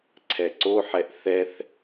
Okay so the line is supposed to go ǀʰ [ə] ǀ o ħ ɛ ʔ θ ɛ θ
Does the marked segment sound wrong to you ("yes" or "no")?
yes